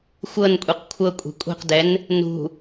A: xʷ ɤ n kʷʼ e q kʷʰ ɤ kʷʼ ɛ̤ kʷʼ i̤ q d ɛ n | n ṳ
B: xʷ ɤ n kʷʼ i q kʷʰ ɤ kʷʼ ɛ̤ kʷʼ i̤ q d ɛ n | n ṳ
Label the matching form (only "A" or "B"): B